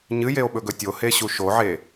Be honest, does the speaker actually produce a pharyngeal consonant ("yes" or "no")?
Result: yes